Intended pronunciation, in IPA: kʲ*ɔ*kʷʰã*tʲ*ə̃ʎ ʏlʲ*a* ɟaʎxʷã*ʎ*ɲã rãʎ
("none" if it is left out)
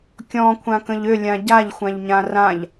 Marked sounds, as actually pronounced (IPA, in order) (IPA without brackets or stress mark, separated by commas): ɔ̃, k, ã, ʎ